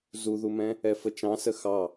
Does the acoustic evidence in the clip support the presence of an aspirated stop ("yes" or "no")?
no